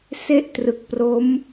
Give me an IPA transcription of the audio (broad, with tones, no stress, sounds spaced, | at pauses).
s e˥˩ ʔ t r ɯ˨˩ k̚ p r o˦˥ m